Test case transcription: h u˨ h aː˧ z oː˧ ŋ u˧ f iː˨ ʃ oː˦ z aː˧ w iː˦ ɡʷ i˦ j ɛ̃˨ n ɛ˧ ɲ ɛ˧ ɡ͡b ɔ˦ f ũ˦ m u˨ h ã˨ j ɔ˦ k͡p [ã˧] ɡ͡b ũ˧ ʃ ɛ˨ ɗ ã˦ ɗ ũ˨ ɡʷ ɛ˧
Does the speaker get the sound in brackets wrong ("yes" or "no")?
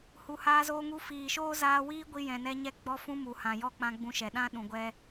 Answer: no